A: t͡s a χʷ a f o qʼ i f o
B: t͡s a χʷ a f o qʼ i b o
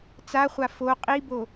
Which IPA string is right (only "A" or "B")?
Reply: B